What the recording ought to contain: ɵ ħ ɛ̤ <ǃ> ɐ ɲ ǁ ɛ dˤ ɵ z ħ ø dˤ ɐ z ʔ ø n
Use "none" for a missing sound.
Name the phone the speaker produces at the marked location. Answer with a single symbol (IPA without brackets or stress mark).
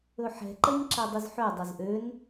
ǃ